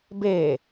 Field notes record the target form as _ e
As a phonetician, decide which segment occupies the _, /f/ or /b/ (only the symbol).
b